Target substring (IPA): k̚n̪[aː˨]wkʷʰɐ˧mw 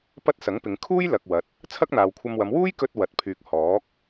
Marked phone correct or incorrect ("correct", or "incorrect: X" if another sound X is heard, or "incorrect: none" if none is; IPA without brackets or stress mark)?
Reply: correct